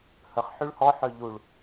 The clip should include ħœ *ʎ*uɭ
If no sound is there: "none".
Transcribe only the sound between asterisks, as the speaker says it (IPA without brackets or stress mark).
ʎ